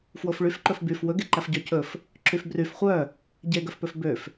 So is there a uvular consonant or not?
yes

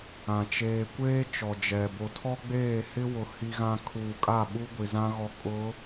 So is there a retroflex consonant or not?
no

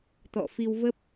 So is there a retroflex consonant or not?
no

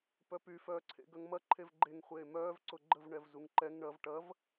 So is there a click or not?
yes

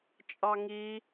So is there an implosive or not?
no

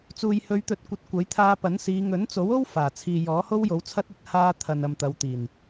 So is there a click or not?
no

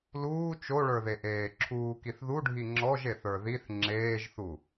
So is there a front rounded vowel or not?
no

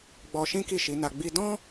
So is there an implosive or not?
no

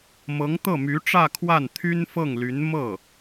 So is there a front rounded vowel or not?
yes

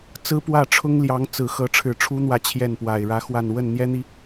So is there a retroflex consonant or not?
yes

